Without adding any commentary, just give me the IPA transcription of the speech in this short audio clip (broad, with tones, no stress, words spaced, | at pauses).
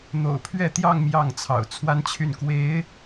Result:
n̪o̰˨˩ʊ̯pʰɥɛ˥˧t̪jɑ˥˧ŋ mjɑ˥˩ŋt͡sʰɑ̰˨˩ʊ̯t͡sʰwa˥nt͡ɕʰy˥˩n kwe˧˥ɪ̯